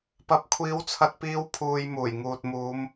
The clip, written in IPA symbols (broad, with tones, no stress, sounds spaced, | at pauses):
p ɐ˥ p̚ kʷʰ iː˥ w t͡sʰ ɐ˥ t̚ p iː˥ w pʰ uː˧ j m uː˨˩ j ŋ uː˨ t̚ m uː˨˧ m